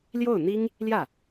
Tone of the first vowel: falling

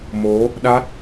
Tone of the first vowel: rising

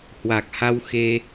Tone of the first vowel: low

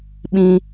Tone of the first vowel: high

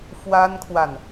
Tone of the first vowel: high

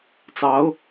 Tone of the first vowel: rising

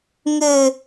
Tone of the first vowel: falling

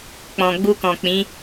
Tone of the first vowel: low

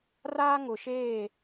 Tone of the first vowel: high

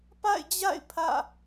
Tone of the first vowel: falling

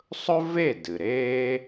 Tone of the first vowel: high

